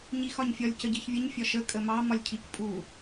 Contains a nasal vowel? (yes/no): no